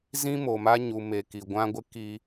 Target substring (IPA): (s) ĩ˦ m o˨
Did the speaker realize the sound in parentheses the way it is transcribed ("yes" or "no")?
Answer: no